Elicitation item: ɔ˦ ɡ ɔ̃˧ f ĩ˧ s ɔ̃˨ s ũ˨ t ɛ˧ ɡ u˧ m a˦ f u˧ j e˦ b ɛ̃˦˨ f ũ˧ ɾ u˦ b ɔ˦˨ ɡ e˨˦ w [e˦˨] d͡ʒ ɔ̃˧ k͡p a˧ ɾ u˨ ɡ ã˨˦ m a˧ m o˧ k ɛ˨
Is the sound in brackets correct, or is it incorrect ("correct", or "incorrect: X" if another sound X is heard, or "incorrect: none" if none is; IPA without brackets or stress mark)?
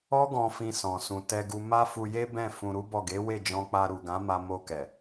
correct